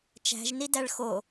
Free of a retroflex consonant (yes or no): no